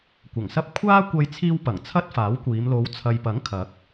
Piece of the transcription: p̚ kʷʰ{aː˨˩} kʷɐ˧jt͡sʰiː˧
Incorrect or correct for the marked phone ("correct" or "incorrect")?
incorrect